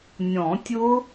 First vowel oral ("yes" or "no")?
no